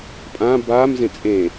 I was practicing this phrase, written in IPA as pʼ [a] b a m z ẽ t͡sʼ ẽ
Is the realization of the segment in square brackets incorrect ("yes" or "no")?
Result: yes